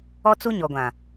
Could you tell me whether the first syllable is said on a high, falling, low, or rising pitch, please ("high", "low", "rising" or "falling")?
high